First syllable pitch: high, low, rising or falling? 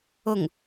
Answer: falling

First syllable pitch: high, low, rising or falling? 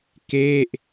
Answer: falling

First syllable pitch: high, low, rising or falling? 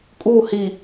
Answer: falling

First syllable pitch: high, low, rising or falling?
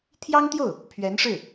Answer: high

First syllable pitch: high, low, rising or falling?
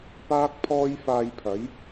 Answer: high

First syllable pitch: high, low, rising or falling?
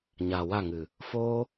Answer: low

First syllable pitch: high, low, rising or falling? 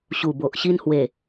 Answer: low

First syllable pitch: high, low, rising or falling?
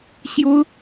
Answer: high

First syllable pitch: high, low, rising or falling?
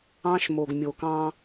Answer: high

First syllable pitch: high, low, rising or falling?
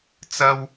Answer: high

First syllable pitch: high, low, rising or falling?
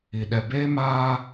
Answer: low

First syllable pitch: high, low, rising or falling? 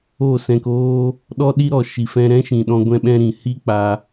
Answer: falling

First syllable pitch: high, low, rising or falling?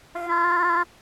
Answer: high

